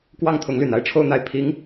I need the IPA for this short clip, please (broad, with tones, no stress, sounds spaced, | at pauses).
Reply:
k w ɑ˥˩ ŋ t̪ʰ ʊ˧˥ ŋ l y˨˩ n a˥˧ ɪ̯ ʈ͡ʂʰ o˥˧ ʊ̯ n̪ a˥˩ ɪ̯ pʰ i˧˥ ŋ